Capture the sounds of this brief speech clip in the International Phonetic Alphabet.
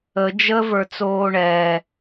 ə d͡ʒ ə v ə˞ t͡s oː ɳ ɛː

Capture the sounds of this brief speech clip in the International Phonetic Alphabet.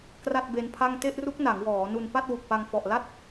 k r a˥˩ t̚ b e˦˥ n pʰ a˥˩ ŋ t e˥˩ ʔ r u˦˥ k̚ n a˩˦ ŋ w ɔː˩˦ n u˧ n p a˥˩ t̚ w u˨˩ k̚ p a˧ ŋ f ɔ˨˩ ʔ l a˥˩ t̚

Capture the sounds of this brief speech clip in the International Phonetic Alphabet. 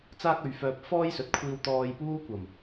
t͡s aː˥ k̚ ɵ˨˧ ɥ f œː˧ p̚ f ɔː˥ j s ɵ˨ t̚ kʷʰ iː˧ w t̪ ɔː˧ j p uː˥ kʷ ɐ˨˩ m

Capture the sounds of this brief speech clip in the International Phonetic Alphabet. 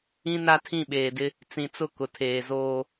ĩ˦ n a˦ tʰ ĩ˦˨ ɓ eː˨ d ɪ˦ | t͡s ĩ˨ t͡s ʊ˦˨ k ʊ˨ tʰ eː˨ z oː˦

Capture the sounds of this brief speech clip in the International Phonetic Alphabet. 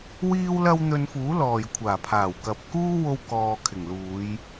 w iː˥ w l ɐ˥ w n̪ ɵ˧ n f uː˨˥ l ɔː˨˩ j kʷʰ aː˨˩ pʰ aː˨˩ w k ɐ˨ p̚ k uː˥ w o˧ w k ɔː˨ kʰ ɪ˨˩ ŋ l uː˨˧ j

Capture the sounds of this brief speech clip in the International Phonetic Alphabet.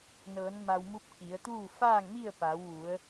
n ɤː˩˧ n m a˧ w m u˧˥ p̚ k i˩˧ ə̯ t̪ uː˥˨ f aː˥˨ ŋ m i˥˨ ə̯ p a˩˧ w ʋ u˩˧ ə̯

